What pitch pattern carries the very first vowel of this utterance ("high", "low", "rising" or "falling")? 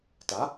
rising